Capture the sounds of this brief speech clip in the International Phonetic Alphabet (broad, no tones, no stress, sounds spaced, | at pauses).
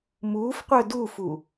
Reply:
m uː f qʷ œ d u f u